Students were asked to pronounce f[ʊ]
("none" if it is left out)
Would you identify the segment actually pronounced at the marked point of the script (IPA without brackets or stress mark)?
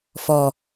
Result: ɔ